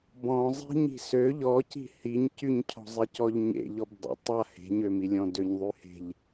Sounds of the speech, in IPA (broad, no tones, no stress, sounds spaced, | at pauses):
b ɔ̃ zˤ i̤ ɲ i̤ s ø ʎ ɔ c i̤ h i ɲ c y ɲ cʰ ɔ̤ zˤ i c ɔ ʎ ɲ ḛ ʎ ɔ b dˤ ə̰ tˤ a h e̤ ɲ ø m i lʲ ɔ̃ d ø ɲ ðˤ y h e̤ ʎ